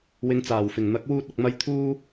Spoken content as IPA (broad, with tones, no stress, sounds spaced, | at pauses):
w ɪ˨˧ ŋ t͡s aː˨˩ w f ɪ˨˩ ŋ n̪ ɐ˨˥ k̚ w uː˧ t̚ ɐ˨ k̚ m ɐ˧ j t̪ʰ uː˥